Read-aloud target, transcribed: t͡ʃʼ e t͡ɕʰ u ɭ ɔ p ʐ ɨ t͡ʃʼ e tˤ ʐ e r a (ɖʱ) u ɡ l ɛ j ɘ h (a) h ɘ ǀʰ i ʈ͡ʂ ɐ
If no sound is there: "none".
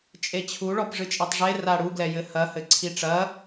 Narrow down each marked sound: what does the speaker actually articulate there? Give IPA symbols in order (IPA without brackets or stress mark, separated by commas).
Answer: ɽ, ɐ